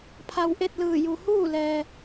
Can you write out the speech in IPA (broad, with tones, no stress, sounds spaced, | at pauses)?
pʰ a˧ w ʔ e˥˨ t̚ l ɯː˧˩ j u˩ h uː˥˨ l ɛː˩